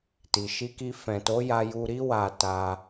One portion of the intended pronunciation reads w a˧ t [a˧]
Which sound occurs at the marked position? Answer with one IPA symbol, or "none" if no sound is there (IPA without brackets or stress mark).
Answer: a˧